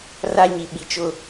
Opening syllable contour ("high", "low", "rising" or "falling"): high